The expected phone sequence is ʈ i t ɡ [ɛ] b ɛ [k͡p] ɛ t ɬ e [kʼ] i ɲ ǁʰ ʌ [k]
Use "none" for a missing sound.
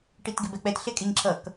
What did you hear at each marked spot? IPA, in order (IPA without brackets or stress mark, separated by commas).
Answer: e, k͡p, kʼ, k